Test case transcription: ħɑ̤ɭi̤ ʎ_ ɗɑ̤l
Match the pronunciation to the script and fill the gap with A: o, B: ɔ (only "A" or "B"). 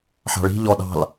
B